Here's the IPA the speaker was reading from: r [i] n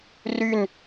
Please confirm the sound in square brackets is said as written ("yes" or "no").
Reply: no